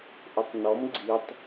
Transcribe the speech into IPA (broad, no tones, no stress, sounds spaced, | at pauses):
ʔ ʊ tˤ n ɔ m ɡ͡ǀ i tˤ